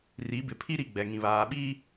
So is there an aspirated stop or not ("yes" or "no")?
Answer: yes